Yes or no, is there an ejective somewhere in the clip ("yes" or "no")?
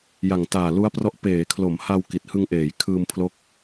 no